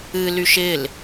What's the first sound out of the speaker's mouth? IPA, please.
ɨ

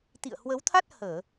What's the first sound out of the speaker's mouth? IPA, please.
t̪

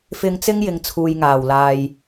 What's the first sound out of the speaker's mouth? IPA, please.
f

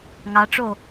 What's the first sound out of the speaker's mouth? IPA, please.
ŋ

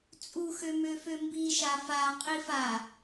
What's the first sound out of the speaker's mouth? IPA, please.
t͡sʼ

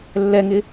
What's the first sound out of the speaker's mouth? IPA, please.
lː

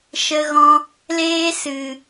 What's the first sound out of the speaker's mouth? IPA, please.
ʃ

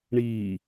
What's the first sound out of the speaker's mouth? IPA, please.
ɳ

